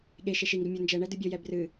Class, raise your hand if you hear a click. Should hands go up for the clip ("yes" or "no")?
no